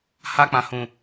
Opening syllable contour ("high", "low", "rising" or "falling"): high